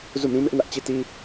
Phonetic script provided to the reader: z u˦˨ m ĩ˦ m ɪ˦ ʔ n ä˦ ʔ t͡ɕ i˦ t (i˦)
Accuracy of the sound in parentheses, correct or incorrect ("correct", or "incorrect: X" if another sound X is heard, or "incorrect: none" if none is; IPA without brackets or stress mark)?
correct